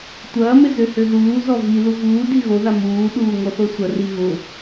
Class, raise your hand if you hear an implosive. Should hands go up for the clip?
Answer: yes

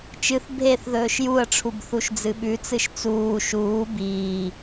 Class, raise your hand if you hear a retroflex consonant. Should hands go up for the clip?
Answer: yes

